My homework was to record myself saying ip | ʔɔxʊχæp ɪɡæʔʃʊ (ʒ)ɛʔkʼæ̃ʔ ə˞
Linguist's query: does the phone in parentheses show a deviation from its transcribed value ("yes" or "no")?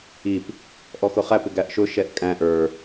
yes